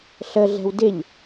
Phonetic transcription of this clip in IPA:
ɬ ə ɮ ɛ̤ w d ɪ ʎ

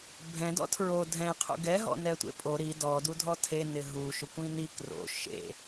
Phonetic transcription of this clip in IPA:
bʱ ɛ̃ d ɔ̰ tʰ ɹ o dʱ ɛ̃ qʰ ṵ ɡ ɛ ɦ ɔ̰ n ɛ tʷ ḛ pʼ o ɾ i d ɔ d u dʱ ɔ tʰ e n ɪ ɦ u ʃ ʊ kʷ ĩ n i k r o̰ ʃ ḛ

